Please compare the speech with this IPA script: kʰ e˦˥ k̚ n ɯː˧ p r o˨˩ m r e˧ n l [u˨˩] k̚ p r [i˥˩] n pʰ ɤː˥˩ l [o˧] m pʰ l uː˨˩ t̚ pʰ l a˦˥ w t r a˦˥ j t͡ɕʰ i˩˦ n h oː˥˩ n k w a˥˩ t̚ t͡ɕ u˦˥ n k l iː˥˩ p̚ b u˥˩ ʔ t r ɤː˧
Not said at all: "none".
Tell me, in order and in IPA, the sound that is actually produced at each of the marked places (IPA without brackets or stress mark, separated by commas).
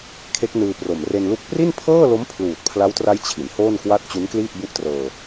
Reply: u˦˥, i˥˩, o˦˥